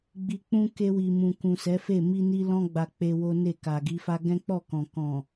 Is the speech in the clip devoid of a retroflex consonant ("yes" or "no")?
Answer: yes